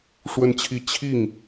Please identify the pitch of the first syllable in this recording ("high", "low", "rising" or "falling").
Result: falling